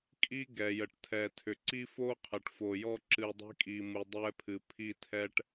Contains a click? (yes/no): yes